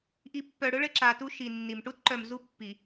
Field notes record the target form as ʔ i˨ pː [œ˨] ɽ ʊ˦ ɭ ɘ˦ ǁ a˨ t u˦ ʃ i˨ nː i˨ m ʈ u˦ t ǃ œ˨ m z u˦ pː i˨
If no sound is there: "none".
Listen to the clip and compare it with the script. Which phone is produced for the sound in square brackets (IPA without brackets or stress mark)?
œ˨